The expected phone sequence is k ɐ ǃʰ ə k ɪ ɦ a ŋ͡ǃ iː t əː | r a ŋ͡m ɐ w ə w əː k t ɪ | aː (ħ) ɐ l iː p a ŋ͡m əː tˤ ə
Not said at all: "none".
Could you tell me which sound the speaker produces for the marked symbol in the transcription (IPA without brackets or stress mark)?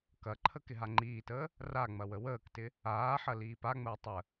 ħ